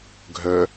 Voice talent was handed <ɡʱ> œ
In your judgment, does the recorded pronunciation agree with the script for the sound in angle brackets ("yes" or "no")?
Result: yes